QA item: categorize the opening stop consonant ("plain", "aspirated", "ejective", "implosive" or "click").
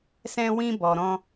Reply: plain